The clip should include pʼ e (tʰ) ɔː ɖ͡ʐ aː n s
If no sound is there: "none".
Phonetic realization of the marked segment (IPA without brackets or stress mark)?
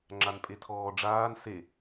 tʰ